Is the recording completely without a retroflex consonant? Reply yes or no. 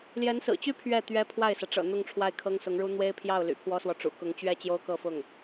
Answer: no